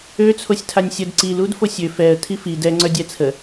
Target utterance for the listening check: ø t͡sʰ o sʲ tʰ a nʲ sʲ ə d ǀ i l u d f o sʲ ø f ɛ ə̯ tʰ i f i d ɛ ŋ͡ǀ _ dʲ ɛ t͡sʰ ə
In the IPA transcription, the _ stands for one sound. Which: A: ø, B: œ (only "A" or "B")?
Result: B